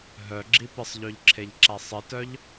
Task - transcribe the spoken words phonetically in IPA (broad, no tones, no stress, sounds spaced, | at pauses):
ɦ œ ɡ͡ǁ i p ɪ sˤ ʎ ø ʎ ǁʰ e ʎ ǁ a sˤ ɪ t œ ʎ